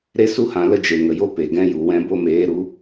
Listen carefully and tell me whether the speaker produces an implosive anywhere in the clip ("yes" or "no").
no